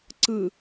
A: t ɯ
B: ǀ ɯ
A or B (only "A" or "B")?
B